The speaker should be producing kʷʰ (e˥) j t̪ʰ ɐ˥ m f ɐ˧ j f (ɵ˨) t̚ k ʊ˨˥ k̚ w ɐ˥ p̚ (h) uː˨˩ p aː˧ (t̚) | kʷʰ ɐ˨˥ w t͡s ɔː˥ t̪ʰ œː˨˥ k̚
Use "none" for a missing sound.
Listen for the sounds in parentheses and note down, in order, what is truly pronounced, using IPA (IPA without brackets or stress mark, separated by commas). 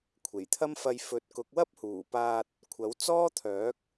e˨˩, ɵ˨, h, t̚